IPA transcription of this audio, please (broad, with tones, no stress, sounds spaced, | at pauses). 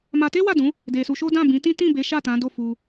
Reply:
m a˧ t e˦ w a˦˨ d ũ˨˦ | d e˧ s u˧ ʃ o˦ d ã˦˨ b ĩ˨˦ t ĩ˦ t ĩ˦˨ b e˨˦ ʃ a˦˨ t ã˨˦ d o˦˨ f u˧